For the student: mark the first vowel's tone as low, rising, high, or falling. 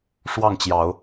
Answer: falling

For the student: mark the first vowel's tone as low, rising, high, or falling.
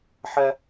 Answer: high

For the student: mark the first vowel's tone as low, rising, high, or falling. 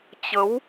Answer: rising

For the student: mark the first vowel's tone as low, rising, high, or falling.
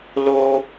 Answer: high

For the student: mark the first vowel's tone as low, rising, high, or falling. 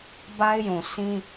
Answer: high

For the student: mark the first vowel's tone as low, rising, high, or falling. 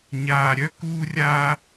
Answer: low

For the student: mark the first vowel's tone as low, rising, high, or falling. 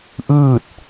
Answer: falling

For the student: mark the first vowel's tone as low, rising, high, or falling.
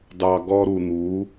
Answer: low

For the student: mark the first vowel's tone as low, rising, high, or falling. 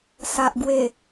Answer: low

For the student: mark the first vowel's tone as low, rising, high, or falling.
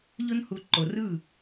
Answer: high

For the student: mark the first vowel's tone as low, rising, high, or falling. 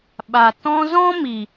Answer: low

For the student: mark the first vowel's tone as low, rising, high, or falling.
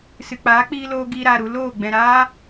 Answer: low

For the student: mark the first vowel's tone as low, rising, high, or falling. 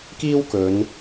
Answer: high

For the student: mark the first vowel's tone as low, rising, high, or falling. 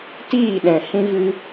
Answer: falling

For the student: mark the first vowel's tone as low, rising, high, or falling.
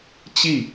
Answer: falling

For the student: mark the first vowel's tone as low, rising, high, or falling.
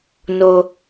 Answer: low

